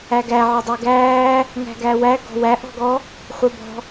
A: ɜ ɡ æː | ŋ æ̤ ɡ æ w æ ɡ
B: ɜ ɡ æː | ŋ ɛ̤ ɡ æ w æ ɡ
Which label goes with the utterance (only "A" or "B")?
A